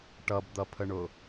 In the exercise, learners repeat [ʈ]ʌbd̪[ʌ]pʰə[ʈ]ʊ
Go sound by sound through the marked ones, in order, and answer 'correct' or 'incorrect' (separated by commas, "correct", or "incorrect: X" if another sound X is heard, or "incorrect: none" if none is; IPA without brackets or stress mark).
correct, correct, incorrect: ɳ